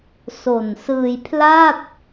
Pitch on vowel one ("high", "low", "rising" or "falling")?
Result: low